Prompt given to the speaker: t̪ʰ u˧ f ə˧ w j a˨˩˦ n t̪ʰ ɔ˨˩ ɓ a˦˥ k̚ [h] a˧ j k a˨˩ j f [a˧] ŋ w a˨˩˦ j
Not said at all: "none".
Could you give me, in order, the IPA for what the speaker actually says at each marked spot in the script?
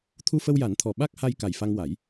h, a˧

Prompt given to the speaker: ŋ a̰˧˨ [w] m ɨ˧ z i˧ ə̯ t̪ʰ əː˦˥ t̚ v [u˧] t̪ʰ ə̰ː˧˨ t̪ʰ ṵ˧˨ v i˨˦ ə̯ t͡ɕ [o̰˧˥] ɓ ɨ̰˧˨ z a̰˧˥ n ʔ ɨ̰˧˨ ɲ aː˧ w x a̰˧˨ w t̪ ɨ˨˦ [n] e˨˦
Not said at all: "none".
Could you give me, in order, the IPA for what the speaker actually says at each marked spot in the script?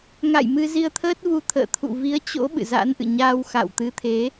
j, u˧, o̰˧˥, t̪ʰ

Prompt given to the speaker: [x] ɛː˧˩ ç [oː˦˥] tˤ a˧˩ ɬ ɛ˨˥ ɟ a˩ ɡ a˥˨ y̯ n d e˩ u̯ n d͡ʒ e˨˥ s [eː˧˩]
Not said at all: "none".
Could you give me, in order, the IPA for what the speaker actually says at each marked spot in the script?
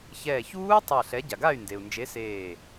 ç, uː˦˥, eː˧˩

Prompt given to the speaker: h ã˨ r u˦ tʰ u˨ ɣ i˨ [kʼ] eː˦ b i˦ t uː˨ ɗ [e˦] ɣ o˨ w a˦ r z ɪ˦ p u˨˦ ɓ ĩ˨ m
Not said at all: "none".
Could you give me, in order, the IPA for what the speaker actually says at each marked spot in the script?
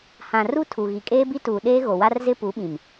kʼ, eː˦

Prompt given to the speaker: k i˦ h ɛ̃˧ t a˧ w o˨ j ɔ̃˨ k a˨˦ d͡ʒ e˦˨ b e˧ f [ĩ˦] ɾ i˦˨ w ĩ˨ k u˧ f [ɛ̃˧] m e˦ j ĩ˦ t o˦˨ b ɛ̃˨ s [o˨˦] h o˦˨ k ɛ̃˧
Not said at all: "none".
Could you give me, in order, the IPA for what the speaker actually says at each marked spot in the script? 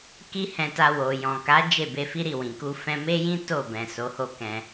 i˦, ɛ̃˧, o˨˦

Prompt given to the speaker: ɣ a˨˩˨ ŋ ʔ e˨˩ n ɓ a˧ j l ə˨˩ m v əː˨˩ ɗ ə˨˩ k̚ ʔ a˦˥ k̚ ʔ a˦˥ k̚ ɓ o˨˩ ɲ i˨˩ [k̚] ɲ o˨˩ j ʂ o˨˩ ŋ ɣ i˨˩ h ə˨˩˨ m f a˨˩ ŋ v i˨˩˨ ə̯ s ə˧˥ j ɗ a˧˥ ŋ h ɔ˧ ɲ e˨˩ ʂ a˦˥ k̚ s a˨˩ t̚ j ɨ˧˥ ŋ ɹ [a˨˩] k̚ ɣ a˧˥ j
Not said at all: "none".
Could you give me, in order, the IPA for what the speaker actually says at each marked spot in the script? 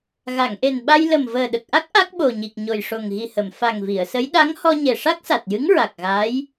k̚, a˨˩

